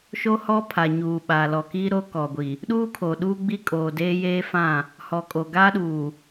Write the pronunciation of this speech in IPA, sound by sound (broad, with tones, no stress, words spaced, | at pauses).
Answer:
ʃo˦hɔ˦ pʰa˨ ɲuː˨ɓa˨ lɔ˨kiː˦ ɾo˦kɔ˨ɡʷi˨ | ɗuː˦kʰo˨ɗuː˦ɡ͡bi˦ kʼoː˨ deː˦jeː˦fã˦˨ | hɔ˨kʼo˨ɡaː˦ɗuː˨